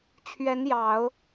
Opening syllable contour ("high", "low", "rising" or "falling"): rising